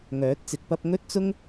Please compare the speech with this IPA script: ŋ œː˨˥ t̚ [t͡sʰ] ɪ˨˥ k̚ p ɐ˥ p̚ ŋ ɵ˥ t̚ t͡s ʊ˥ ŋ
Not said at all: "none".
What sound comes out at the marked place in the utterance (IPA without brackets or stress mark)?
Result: t͡s